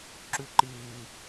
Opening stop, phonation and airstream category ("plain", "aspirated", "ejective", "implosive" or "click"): click